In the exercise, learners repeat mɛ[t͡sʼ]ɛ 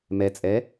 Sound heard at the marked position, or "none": t͡sʼ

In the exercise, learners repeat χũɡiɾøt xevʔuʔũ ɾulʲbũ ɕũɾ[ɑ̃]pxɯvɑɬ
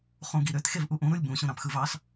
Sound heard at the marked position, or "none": ɑ̃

